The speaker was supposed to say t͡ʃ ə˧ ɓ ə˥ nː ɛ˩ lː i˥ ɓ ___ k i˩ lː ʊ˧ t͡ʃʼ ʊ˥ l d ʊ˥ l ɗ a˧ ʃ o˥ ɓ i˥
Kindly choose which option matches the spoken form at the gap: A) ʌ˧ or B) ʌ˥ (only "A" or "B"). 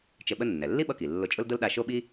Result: A